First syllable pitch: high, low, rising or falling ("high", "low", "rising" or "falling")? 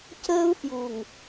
high